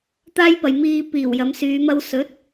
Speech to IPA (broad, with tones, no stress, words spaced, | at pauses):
t̪aː˥jpɐ˨j miː˧ piː˨˩wjɐ˨˧msyː˨˧ mɐ˧w sɵ˨˥t̚